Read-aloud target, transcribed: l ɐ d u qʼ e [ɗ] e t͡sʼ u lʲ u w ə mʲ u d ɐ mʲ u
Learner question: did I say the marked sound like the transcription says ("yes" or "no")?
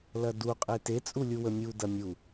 no